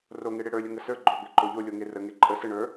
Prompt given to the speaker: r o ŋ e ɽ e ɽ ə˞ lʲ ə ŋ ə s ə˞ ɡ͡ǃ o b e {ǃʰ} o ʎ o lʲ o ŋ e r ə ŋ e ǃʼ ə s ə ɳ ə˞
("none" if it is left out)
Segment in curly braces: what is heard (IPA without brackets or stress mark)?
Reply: ǃ